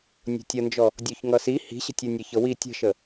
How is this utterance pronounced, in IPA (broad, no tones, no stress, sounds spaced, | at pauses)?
nʲ o̤ tʲ ʌ n d͡ʒ ɔ | dʲ o ç ŋ ʌ s i h i̤ ɕ ə̤ tʲ ɤ nʲ ə ç ɤ w i tʲ ə̤ ʃ ə